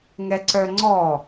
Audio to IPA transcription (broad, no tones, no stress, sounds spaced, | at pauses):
ŋ ɛ ǀ œ ŋ͡ǀ ɔ